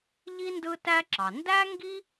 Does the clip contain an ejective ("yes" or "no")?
no